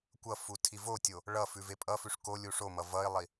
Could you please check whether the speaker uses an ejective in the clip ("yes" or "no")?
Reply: yes